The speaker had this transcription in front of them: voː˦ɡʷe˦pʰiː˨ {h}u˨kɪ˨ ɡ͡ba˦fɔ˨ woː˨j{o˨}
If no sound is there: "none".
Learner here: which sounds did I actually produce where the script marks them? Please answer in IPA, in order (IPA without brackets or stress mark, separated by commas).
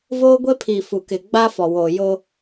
f, o˦